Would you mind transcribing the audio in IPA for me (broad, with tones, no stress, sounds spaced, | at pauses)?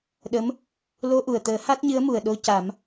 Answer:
ɗ ə˧˥ m | l o˧ ʔ u˨˩ ə̯ t̪ əː˨˩˦ h a˦˥ t̚ ɲ ɨ˧˥ ə̯ m u˨˩ ə̯ ɗ o˧ c a˨˩˦ m